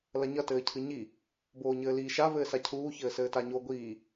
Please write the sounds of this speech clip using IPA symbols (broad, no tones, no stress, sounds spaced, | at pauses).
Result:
l ɐ ɲ ɐ t ɘː cʰ ɨ ɲ i | b oː ɲ ɘː l iː ʃ a v ɘː s a cʰ uː ç ɘː s ɘː t a ɲ o ɡʷ iː